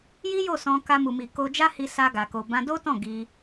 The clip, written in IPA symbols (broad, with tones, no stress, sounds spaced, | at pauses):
j i˦ j o˦˨ s ɔ̃˧ k a˧ m u˨ m i˨ k o˧ d͡ʒ a˦ h i˧ s a˧ ɡ a˨ k o˨ b ã˧ d o˦ t ɔ̃˦˨ ɡ i˧